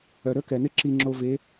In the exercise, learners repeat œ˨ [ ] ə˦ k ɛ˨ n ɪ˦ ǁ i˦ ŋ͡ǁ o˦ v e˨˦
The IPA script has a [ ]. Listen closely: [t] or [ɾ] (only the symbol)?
ɾ